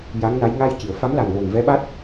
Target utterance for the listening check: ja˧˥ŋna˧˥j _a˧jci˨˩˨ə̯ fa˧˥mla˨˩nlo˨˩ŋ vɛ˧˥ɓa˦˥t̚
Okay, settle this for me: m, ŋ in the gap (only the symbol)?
ŋ